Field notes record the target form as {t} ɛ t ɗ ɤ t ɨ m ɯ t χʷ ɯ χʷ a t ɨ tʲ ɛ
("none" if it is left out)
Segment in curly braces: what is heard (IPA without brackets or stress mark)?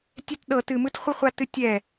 tʲ